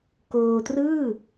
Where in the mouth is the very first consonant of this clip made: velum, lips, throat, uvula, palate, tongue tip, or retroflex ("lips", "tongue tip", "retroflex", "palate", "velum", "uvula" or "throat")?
velum